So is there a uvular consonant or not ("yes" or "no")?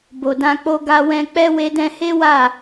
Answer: no